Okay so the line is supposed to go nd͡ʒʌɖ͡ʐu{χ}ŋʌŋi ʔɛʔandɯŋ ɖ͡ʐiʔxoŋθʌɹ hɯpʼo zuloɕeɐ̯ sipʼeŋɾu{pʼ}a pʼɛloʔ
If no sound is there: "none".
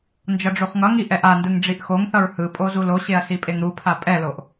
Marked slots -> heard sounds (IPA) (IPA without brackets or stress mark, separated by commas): χ, pʰ